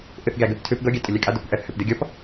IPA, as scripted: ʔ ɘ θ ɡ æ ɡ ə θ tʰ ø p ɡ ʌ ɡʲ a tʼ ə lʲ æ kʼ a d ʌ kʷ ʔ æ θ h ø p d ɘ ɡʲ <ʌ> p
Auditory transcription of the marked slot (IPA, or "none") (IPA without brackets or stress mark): ʌ